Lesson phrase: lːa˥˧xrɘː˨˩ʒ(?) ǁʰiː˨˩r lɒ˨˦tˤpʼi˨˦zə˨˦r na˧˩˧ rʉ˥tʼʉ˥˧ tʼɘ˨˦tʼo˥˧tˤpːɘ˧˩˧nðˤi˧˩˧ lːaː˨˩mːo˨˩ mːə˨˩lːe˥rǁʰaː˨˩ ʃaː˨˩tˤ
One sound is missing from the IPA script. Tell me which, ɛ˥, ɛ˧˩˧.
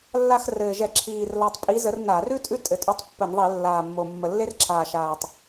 ɛ˧˩˧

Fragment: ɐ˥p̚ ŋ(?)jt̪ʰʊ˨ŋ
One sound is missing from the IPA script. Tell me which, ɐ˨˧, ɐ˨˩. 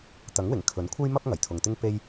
ɐ˨˩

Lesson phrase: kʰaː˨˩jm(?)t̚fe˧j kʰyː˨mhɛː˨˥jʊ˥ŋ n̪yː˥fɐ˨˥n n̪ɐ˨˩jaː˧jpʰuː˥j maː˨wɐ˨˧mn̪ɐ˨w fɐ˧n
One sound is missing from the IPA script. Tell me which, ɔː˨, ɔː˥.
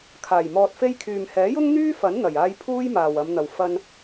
ɔː˨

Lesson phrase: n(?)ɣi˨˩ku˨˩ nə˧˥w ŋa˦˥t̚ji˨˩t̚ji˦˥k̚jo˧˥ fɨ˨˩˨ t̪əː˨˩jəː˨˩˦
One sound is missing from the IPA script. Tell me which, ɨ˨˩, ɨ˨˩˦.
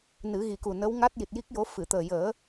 ɨ˨˩˦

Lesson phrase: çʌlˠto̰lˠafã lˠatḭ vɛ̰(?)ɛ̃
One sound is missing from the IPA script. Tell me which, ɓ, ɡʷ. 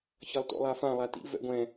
ɡʷ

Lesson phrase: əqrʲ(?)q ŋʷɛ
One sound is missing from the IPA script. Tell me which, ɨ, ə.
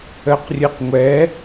ɨ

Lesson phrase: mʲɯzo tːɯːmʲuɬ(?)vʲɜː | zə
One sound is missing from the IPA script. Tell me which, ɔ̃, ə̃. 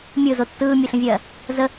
ə̃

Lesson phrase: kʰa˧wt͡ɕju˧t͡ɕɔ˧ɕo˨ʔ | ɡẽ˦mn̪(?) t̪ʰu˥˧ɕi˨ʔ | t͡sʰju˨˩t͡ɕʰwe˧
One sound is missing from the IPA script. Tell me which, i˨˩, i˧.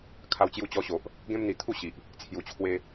i˨˩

